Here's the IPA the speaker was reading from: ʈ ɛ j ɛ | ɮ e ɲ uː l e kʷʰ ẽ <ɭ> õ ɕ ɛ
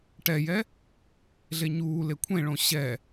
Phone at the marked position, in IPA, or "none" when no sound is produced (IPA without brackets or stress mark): ɭ